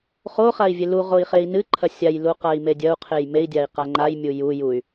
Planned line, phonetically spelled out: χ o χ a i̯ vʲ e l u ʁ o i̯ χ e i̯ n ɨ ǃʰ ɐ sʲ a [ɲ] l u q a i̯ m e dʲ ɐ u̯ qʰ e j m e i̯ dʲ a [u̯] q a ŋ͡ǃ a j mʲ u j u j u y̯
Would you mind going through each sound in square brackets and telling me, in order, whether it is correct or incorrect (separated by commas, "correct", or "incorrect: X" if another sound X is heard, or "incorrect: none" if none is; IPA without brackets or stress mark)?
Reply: incorrect: j, incorrect: i̯